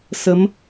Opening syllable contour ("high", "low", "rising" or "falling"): rising